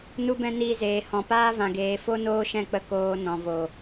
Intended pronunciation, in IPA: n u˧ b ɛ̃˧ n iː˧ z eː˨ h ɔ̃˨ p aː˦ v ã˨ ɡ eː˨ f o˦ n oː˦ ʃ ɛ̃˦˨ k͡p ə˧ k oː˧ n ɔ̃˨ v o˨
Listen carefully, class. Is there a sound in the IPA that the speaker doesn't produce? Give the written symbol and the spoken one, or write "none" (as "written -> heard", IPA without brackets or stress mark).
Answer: none